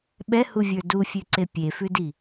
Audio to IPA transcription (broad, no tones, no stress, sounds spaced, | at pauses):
ɓ ɛ h u vʲ ə˞ d u fʲ ʉ ǀ e pʲ e f ʉ d i